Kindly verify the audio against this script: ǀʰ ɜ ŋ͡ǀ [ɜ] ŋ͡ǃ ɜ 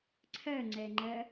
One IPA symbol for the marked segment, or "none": ɛ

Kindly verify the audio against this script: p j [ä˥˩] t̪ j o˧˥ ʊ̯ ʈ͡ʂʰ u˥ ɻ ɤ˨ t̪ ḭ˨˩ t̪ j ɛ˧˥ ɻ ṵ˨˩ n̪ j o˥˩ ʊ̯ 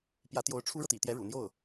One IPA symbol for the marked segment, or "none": ä˧˥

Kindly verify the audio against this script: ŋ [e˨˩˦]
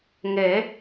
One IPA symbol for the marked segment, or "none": e˨˩˦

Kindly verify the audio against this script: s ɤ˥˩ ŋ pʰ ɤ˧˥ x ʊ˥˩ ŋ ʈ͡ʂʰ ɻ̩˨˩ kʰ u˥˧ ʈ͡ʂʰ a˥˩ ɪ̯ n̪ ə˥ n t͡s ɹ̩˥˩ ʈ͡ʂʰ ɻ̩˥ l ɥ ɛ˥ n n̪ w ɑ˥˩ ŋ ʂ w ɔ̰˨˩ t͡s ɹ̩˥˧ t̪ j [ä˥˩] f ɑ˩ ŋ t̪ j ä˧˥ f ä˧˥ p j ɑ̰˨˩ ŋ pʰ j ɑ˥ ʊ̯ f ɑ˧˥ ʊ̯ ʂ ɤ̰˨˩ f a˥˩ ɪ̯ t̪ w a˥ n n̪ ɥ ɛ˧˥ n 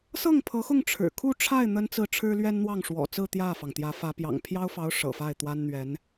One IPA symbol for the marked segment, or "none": ä˥˩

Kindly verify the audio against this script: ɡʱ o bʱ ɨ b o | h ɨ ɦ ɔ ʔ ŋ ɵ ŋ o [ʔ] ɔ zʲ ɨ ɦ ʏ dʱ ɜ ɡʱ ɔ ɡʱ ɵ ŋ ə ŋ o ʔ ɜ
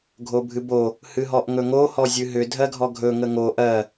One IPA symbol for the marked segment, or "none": h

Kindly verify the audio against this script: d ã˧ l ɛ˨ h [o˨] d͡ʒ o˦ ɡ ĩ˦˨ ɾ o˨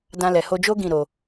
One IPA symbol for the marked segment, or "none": o˧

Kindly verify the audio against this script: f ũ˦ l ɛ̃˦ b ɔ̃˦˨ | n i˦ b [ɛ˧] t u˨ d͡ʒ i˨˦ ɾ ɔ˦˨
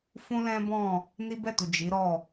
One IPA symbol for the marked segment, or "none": ɛ˦˨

